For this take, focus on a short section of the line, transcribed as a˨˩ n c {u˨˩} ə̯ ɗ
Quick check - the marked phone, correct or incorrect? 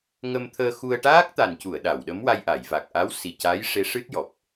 incorrect: u˨˩˨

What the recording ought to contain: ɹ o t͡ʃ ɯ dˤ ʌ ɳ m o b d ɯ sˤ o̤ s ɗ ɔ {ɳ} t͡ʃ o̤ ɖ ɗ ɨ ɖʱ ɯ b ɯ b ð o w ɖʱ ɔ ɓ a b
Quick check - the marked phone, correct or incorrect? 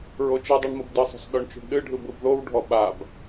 correct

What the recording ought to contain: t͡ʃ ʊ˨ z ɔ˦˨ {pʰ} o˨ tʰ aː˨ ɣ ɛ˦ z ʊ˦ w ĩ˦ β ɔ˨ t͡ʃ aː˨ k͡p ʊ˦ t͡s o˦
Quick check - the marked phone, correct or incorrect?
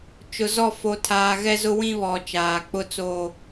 incorrect: f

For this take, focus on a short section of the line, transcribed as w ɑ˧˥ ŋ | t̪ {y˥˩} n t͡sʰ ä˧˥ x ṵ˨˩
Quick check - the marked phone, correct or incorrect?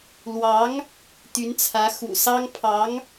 incorrect: y˧˥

